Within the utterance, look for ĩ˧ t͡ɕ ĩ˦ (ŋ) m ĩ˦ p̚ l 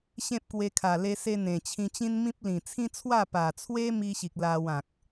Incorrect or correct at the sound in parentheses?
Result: incorrect: n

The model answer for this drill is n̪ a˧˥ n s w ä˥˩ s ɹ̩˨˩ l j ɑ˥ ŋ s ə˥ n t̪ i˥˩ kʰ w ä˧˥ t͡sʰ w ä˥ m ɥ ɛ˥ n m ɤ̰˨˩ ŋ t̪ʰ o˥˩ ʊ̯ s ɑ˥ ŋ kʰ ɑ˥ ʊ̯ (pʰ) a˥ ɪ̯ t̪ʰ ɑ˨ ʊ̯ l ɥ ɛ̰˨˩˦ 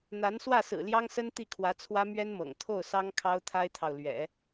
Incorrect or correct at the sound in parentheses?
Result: incorrect: t̪ʰ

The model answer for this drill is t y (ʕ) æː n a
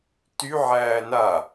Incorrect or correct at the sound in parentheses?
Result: correct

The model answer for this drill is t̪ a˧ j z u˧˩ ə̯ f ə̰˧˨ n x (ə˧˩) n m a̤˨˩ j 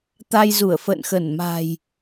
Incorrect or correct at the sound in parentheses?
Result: correct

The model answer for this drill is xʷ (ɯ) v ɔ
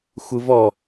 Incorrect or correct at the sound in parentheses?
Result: correct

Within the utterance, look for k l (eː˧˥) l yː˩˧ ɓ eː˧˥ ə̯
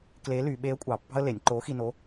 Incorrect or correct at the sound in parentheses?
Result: correct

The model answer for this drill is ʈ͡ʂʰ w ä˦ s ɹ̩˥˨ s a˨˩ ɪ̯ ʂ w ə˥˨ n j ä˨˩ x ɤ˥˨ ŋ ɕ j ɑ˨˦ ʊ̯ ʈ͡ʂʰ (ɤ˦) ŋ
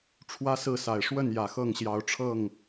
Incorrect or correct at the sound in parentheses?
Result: incorrect: ɤ˥˨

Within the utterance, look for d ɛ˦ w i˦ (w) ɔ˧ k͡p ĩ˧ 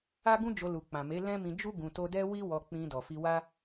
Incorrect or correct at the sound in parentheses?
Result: correct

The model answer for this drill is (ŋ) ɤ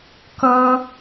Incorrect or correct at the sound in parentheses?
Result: incorrect: k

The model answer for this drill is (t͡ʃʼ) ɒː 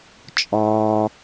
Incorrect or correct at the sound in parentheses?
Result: correct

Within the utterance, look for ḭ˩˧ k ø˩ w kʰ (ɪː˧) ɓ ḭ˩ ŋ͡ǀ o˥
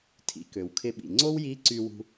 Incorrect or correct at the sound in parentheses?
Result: incorrect: ɪ˧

